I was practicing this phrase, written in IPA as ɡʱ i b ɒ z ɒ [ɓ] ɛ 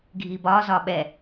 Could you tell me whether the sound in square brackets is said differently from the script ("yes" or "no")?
no